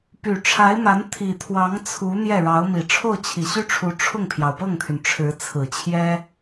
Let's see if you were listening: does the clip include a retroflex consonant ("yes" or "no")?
yes